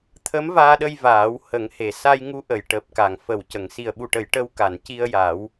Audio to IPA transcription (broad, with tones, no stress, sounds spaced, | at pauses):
t̪ʰ ə˧˥ m v aː˧ ɗ ə˧ j v aː˨˩˦ w h ə˨˩˦ ŋ h e˨˩ s a˧ j ŋ u˧˥ ʔ ə˨˩˨ j ʈ əː˨˩ p̚ k a˨˩ ŋ f ə˨˩ w c ə˨˩˨ ŋ s i˨˩ ə̯ ɓ u˨˩ ʈ ə˨˩˨ j ʈ ə˧ w k a˨˩˨ n c i˧ ə̯ j a˨˩˦ w